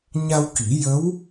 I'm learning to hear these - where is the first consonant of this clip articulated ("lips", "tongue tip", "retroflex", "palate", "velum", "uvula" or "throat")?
palate